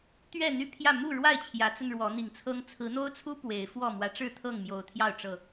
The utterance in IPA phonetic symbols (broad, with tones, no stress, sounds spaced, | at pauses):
t̪ ɥ ɛ˥˨ n̪ y˥˨ pʰ j ä˥˨ m u˥˨ ɻ w a˥˨ ɪ̯ t͡ɕʰ j ä˨˦ t͡s ə˧ n ɻ w ɔ˨˦ n̪ i˨˩ ŋ t͡sʰ ɤ˦ ŋ t͡sʰ ɹ̩˨˦ n̪ o˦ ʊ̯ t͡sʰ u˦ p w e˨˦ ɪ̯ f w ɔ˥˨ m w ä˨˦ ʈ͡ʂ ɻ̩˥˨ t̪ʰ ɤ˥˨ ŋ m j o˨˩ ʊ̯ t̪ʰ j ɑ˥˨ ʊ̯ ʈ͡ʂ ɤ˨˩